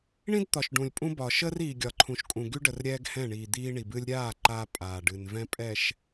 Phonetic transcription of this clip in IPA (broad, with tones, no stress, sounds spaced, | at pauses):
ɳ ĩ˦ d t̪ ɒ˨ ʃ ɖ ũ˨ lʲ pʼ ũ˦ b ɒ˨ ʃ əː˦ r iː˨ ɡʲ ɒ˨ ǃʰ ũ˨ ʃ kʼ ũ˨ ɡ y˦ ɖ ə˨ r ɾʲ ɛː˦ ɡ h ɛ̃˦˨ ɳ iː˨ d̪ iː˦ ɳ i˨ b ɨː˦ lʲ ɾʲ aː˦˨ ǃ aː˦ pʼ aː˨ ɖ ɨ˨ n v ɛ̃˦ pʼ ɛ˨ ʃ